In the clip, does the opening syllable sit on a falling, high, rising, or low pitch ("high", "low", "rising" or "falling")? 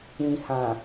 low